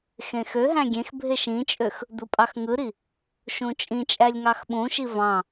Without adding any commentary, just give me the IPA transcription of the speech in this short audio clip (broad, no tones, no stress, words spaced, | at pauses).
xẽxøɦæ̃ ɡʲẽxbʱe ʃĩt͡ʃʼøx | d̪upʼɑxŋɯɾi | ʃũt͡ʃʼĩt͡ʃʼælʲ ŋɑxɓũʃi vɑ̃